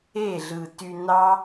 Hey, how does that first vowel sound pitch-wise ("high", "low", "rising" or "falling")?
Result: falling